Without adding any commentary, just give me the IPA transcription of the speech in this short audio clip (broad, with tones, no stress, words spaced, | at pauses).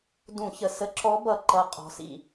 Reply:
dũ˧˩˧çə˨˩ sə˧˥ǁɔ˧˥ bʌ˨˩ǃʌ˨˩ qʼɔ̤˧˥sḭ˧